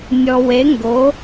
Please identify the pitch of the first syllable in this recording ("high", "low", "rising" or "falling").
low